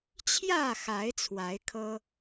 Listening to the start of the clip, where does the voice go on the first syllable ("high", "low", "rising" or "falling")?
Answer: falling